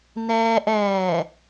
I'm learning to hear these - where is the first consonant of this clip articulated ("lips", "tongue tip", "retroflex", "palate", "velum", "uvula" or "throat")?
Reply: tongue tip